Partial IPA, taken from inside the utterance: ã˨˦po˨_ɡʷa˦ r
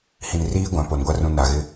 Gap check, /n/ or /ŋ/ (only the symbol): n